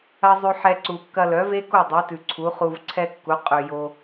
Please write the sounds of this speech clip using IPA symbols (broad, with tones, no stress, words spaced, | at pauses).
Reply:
ɐ˦ zˤʉ˧ħɛ˧ ǀu˨kːɐ˧ lœ˨˦ve˦ko˦˨ dˤi˨˦tʉ˨ǀʰu˨˦ χu˧vǀʰɛ˦kːu˨˦ qʼʉ˨jo˧